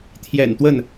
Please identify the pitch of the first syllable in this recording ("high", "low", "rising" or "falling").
low